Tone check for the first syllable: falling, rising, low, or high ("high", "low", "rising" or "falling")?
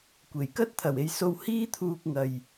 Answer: low